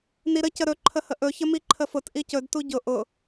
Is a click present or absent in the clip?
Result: present